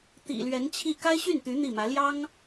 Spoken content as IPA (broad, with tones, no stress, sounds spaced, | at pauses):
t̪ ḭ˨˩ l ɥ ɛ˧˥ n t͡ɕʰ i˥˩ k a˥ ɪ̯ ɕ y˥˩ n t̪ y˧˥ n̪ i˥˩ m ä˧˥ l j ɑ˥ ŋ